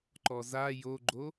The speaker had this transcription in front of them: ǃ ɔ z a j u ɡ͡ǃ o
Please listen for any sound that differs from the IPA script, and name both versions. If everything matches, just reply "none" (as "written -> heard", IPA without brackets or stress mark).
u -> o